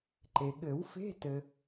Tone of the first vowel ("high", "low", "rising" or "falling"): low